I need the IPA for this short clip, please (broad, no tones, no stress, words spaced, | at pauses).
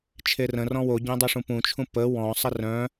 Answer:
t͡ʃʰerə̃ rɔ̃woɟœ̃ dˤiʂũpũt͡ʃʰũ pə wɔ̃ sˤərœ̃